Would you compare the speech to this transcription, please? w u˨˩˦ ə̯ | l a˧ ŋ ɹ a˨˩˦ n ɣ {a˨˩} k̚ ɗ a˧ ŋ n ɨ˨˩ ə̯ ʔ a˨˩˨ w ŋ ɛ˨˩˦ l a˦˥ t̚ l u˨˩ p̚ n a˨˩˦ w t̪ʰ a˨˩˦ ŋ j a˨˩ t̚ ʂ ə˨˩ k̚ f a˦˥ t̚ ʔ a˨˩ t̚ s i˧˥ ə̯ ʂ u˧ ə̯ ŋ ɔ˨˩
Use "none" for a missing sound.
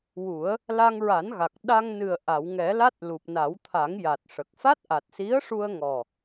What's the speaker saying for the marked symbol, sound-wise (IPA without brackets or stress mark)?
a˨˩